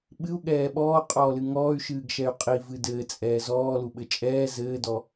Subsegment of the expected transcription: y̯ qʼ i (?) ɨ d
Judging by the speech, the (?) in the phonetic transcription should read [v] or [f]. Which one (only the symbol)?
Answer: v